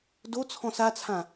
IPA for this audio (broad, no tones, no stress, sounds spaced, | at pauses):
d o t͡sʰ ɔ̃ s a t͡sʰ ã